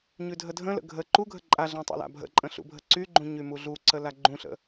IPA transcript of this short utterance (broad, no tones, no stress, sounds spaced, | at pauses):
ɲ ʉ dʱ ə dʱ ə̃ l ə̰ ɡʱ ə ǃ u ɡʱ ə ǃʼ a ɮ ã tˤ ṵ l a̰ bʱ ə̰ ǃʼ ə̃ ɬ ṵ bʱ ə ǀ y ɡ͡ǃ ũ ɲ y m u ɮ u ǀ ə l a ɡ͡ǃ ũ ɬ ə̰